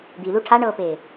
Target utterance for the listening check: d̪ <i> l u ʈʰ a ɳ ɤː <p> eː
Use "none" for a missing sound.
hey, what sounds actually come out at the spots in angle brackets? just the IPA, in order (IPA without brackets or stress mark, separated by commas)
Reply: i, p